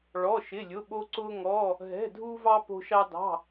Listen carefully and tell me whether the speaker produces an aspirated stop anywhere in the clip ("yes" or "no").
no